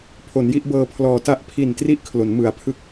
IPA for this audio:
pʰ o˩˦ n j i˥˩ ʔ b ɤː˧ pʰ l ɔː˨˩ t a˦˥ ʔ pʰ i˨˩ n t r i˥˩ ʔ kʰ l o˩˦ n m ɯ˩˦ a̯ pʰ ɯ˦˥ k̚

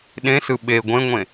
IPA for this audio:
ɗ ẽ s ɯ ɓ e ɡʷ ẽ ŋʷ ẽ

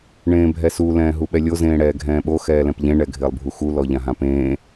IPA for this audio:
ɳ ẽː bʱ ɛ s u l ɛ̃ː ɦ u ɓ ɛ lʲ o z ẽː ɽ ɛː ɡʱ ɛ̃ː ɓ o x ɛː l ɛ̃ p ʎ ẽ ɳ ɛ ɡʱ ɪː lˠ bʱ u x u l ɔ ʎ ã ɦ ã p ẽː

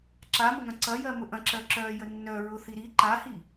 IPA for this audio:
ǁ a m ə ŋ ɐ̃ ǀ ɐ j ɜ m ʊ ʔ ɐ̃ ǁ ɜ ǁ œ j ə nː œ ɹ ʊ θ i ɾ i ǃ a h i

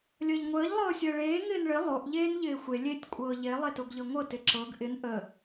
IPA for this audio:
lʲ əː ʎ ŋʷ əː ʎ lˠ ɤː sʲ əː ɭ eː ŋ ɪː n ɭ ɪ lˠ o ʔ ʎ eː n ʎ ɪː xʷ e lʲ e tʲ kʷʼ ɤː ʎ e lˠ e t o ɡ ʎ ɤ ŋʷ ɤ t ɪ ǁ ɤ ɡ ʔ ɪ n ʔ ə

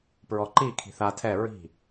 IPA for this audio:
p ɹ ɔ ǃ i kʰ i̤ θ a tʰ ɛ ɹ i̤

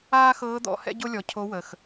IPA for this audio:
aː˥ x ɤː˧˥ d̪ ɔ̰˩˧ h ɛ̰˥ ɟ o˥ lʲ ɔ˩ cʰ o˧˥ w ə˩ x

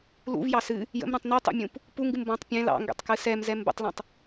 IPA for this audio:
l ṵ v j ɑ s ɨ | j ə̰ m ɾ ũ tˤ n i tˤ ṵ mʲ ũ p | p u ŋ ɡ ɨ m b ɔ̃ tˤ pʲ ɛ̃ l ɑ̰ ŋ ɡ ɛ̰ tˤ k ɨ s ɛ m z ɛ m b ə̰ tˤ l ɛ̃ tˤ

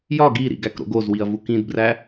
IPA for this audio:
j ɒ ɡ i ɾ ḭ ɡ æ k ɾ o̰ ɡ o z w i ɐ̯ v u k ĩ d b r æ

